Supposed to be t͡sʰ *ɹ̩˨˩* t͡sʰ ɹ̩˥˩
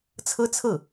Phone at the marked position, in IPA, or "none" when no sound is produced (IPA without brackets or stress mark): ɹ̩˥